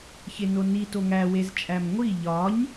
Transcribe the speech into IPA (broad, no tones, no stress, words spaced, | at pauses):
çenoni toŋæ wezt͡ʃʼæmŋʷi ʎɒɲ